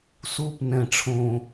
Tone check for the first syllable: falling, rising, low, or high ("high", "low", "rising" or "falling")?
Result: falling